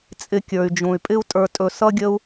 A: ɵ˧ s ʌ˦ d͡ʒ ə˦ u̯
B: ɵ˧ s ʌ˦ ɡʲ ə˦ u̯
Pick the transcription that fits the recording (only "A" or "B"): B